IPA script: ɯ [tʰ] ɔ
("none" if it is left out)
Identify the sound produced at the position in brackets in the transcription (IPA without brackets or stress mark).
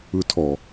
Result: tʰ